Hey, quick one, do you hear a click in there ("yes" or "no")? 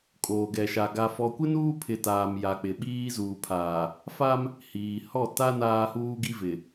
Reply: no